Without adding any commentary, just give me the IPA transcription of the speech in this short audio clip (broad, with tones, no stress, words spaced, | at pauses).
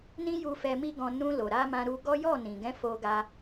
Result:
nĩ˦ju˧ fɛ˧mi˦ɡɔ̃˧ nũ˧lo˨ɾa˧mã˧ ɾu˧ɡɔ˦ jɔ˦˨nĩ˨ɡɛ̃˨˦ fo˧ɡa˧